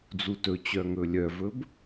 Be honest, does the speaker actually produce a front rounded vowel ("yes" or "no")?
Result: yes